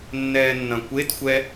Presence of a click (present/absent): absent